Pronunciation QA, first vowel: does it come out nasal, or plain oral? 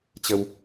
oral